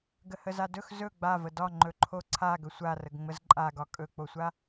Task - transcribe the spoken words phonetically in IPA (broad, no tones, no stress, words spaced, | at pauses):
ɡəhəzadɵx zɵ ɡ͡bavə dɒ ŋ͡ǃɵǃʰoǀʰa ɡɵsʷarəɡŋ͡məz ǃʼaɡɒ kʼɵk͡posʷa